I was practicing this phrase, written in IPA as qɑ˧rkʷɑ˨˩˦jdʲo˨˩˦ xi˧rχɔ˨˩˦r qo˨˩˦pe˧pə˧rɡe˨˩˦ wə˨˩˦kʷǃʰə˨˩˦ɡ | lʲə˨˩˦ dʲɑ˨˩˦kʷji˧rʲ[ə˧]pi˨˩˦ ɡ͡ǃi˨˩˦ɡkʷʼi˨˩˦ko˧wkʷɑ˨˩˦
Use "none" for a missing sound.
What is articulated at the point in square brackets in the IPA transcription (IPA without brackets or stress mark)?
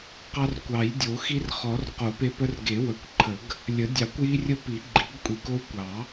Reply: ə˧